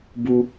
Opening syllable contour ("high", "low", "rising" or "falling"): high